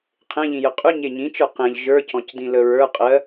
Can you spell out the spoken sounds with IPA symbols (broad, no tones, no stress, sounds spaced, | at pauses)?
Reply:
qʰ ẽ ʎ ĩ j ə qʼ ʉ ɲ e ɲ ĩ t͡ʃ ə˞ q ẽ ʎ ʒ ə˞ c ɔ̃ c d ĩ l ə ɹ ə˞ qʼ ɜ